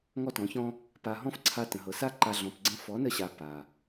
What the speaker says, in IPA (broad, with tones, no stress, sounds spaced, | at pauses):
ŋ ɔ˦ t ɔ̃˨˦ ç ɔ̃˦ | p a˧ ɦ ɔ̃˦ f ǀʰ a˧ t ə̃˨ ɦ ɤ˨ s a˦˨ ǃ a˧ ɮ ɔ̃˨ p ɡ͡ǀ ə̃˧ f ɔ˨˦ n ə˧ ɕ a˨ p a˨